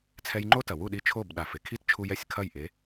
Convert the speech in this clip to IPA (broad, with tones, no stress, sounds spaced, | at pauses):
t͡sʰ ɛ˧ j ŋ͡ǃ o˥ t ɐ˩ w u˥˩ ɗ i˧ t͡ʃʰ o˥˩ b ɗ a˩ f e˩ kʰ i˥ t t͡ʃʰ u˧ j ɛ˩ sʲ kʰ ɐ˥˩ j ʔ e˩˥